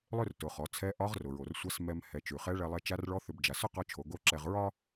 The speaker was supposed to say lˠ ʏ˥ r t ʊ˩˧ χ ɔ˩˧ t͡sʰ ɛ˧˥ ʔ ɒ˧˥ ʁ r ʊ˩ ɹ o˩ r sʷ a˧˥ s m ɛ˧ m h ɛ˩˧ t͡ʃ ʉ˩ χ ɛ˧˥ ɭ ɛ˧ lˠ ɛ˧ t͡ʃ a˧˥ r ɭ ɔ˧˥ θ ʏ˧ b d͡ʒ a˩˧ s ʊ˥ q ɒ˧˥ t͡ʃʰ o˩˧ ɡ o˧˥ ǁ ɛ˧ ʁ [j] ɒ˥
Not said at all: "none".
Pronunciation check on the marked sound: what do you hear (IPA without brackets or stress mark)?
ɹ